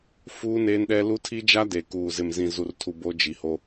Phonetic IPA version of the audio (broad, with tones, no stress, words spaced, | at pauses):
fuː˦neː˦nɗɛ˦ lu˦ tʰi˦d͡ʒa˦ de˨kuː˨ zɪ˨mzĩ˨zu˨rtʰu˨ bo˦d͡ʒi˨ho˦